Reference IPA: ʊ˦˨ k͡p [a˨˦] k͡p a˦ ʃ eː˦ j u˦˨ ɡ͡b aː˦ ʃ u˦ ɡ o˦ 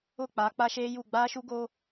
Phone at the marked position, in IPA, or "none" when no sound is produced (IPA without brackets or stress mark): a˨˦